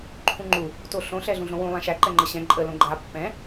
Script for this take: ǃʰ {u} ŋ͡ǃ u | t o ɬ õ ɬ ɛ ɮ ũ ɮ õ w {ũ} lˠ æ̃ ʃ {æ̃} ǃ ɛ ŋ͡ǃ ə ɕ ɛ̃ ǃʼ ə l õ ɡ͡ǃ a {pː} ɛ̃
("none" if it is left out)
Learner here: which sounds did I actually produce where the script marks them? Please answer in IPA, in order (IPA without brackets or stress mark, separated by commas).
ũ, ũ, æ, pː